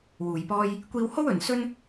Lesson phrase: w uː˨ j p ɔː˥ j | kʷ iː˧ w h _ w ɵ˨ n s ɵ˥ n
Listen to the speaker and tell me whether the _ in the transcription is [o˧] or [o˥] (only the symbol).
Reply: o˥